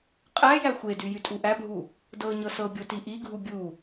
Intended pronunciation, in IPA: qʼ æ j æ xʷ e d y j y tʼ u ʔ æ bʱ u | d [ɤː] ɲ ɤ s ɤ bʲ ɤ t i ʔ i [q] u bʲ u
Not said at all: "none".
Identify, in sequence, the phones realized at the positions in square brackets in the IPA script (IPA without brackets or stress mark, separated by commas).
ɤ, ɡʱ